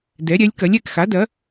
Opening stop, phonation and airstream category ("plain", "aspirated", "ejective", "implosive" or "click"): plain